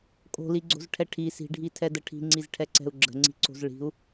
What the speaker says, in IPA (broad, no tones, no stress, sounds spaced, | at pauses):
kʼ o̤ l i ɡ͡ǀ o̤ z ʈʰ ɛ ʈʰ i s i̤ ɖʱ i tʰ ɛ d ə ʈʰ i̤ ŋ͡ǀ i z ʈʰ ɛ ǀ ɛ̤ u̯ ɡ͡ǁ ə̤ ŋ͡ǀ i̤ ǀ o̤ z ɭ i̤ u̯